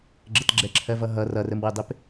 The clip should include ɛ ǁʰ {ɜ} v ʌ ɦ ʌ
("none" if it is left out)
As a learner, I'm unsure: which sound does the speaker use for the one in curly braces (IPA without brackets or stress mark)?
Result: ɜ